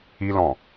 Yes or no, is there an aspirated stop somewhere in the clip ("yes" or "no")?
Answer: no